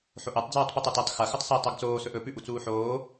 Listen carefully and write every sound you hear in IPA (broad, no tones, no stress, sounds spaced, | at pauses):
ħ o ʔ e tˤ d͡z uː tˤ p i tˤ ɐ t e tˤ x ɐ x ɵ tˤ s i tˤ ɵ ɡ t͡s oː s ɵ ʔ ɵ p ʉ ʔ u t͡s uː ħ oː